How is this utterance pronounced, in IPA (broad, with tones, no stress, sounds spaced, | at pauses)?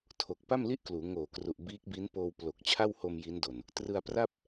tʰ o˨˩ k̚ p a˥˩ m l i˥˩ ʔ k l uː˩˦ ŋ oː˨˩ k r u˨˩ ʔ b iː˦˥ k̚ b i˦˥ n p oː˧ w p l o˨˩ k̚ t͡ɕʰ a˥˩ w h o˧ m j i˦˥ n d o˨˩ n | t r ɯ˧ a̯ p r a˥˩ p̚